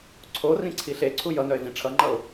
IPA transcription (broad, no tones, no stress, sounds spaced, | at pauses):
ǀʰ o r ĩ ǀʰ i ɬ e ǀʰ u j ʌ n œ ɪ̯ v ĩ ʈ͡ʂʰ ʌ ŋ͡ǃ ʌ ʊ̯